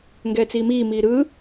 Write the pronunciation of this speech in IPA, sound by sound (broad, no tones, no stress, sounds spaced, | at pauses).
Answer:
ŋ ɡ ɛː t͡s iː m iː m iː ɾ ɯː